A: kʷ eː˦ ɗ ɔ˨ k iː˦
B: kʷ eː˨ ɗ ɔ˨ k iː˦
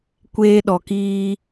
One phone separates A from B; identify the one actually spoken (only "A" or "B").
A